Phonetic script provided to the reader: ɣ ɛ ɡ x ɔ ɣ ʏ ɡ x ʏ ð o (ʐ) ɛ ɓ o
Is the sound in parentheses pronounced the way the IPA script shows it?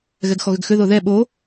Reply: no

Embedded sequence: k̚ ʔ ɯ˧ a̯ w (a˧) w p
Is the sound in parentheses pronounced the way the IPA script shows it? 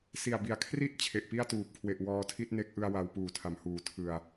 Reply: yes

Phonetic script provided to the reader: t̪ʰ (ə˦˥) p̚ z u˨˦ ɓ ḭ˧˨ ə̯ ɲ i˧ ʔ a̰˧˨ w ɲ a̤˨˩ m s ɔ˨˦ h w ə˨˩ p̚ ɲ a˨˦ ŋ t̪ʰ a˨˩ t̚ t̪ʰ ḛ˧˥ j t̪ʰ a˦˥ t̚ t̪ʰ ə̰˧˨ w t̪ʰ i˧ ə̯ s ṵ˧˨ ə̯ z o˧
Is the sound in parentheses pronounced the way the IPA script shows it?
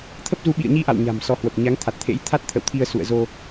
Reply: yes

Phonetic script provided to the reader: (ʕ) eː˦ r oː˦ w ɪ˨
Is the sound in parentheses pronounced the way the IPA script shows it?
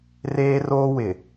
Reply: no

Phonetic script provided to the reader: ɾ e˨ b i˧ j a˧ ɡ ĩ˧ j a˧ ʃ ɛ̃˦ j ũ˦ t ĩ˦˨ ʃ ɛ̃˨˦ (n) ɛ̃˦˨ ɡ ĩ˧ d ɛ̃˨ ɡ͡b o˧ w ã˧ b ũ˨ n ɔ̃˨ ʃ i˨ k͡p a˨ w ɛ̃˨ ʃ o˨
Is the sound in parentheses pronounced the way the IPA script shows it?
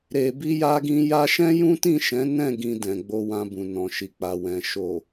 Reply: yes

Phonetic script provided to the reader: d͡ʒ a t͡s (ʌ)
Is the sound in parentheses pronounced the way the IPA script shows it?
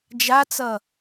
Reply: yes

